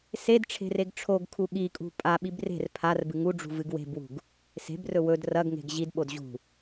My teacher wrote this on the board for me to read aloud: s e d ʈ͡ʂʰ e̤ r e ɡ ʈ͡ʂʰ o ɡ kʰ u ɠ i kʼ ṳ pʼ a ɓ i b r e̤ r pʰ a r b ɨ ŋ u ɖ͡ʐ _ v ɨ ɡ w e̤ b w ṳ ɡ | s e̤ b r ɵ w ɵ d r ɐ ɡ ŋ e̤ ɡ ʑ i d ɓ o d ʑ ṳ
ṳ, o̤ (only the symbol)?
ṳ